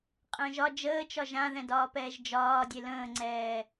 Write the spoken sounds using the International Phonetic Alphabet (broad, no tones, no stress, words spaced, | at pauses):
qʼə̃ːʒɒ d͡ʒəːt͡ʃɒ ʒãðɛ̃dɒːpɛːʒ d͡ʒɒː dʲelə̃ːŋ͡ǀɛː